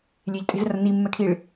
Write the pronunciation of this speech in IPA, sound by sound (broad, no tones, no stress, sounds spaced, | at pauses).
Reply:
lʲ e ʎ tʼ e̤ z r ɐ n i mː ɛ kʰ i ɭ